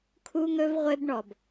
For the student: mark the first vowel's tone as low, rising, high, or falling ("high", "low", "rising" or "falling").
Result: high